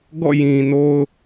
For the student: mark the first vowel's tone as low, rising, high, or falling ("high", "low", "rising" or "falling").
falling